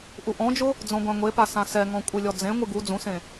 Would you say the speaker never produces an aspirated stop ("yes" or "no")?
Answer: yes